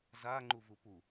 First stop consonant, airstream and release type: click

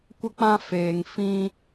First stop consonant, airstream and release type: plain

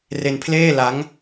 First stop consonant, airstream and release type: aspirated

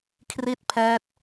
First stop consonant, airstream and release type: aspirated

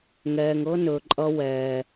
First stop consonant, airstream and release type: click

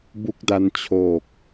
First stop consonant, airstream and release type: plain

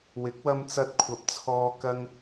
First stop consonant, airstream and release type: plain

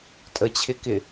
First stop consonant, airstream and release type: ejective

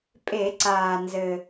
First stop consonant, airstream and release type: ejective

